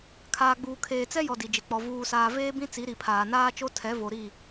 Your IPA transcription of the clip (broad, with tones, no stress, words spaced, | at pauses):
kʰaː˨ɡ͡buː˨ kʰeː˨t͡sɛ˦jɔ˨ di˨d͡ʒɪ˨k͡pɔ˨ vuː˨saː˨ veː˦bĩ˦ t͡si˨˦ɾi˨pʰaː˨ naː˦t͡ʃo˦ tʰɛ˨˦vo˨ ɾi˦˨